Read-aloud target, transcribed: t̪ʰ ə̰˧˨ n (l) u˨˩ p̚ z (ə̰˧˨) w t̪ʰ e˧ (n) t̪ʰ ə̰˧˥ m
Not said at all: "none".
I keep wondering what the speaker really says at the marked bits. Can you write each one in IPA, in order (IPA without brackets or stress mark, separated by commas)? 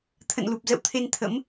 l, ə̰˧˨, n